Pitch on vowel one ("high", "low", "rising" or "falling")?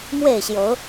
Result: falling